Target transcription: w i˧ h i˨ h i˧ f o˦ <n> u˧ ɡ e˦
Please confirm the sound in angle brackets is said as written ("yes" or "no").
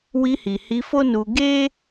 yes